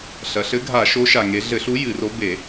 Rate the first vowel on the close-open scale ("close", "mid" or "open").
open